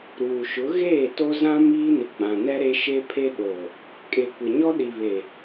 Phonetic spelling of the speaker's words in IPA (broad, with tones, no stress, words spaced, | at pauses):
ɾuː˨ʃʊ˨˦ ɣeː˦˨to˦ zã˦ miː˦nɪ˨ɡ͡bã˨nɛ˦ ɾe˦ʃe˦pʰe˦ ɗo˨ | kʼe˨kʷɪ˨ ɲɔ˦ɗi˨βe˨